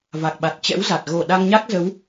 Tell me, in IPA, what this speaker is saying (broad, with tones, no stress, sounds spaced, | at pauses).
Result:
v a˨˩ k̚ ɓ a˨˩ t̚ t͡ɕ ɛ̰˧˥ w z a˨˩ t̚ ɣ o˧˩ ɗ a˧ ŋ ɲ a˦˥ k̚ z ə˨˦ w